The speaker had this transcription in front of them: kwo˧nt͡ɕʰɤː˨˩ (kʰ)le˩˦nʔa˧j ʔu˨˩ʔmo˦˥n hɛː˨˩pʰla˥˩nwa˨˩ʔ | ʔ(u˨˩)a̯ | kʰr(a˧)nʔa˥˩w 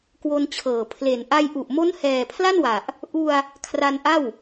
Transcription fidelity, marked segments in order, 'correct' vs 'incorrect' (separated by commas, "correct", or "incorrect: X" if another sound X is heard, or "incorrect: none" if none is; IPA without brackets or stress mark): incorrect: pʰ, incorrect: u˧, correct